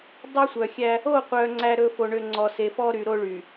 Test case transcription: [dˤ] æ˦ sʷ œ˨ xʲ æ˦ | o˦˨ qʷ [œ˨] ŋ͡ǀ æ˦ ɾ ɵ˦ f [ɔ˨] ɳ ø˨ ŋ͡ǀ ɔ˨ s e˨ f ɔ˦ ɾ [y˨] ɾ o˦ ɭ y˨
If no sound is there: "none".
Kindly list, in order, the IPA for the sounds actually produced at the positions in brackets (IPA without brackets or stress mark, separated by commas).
dˤ, œ˨, o˨, y˨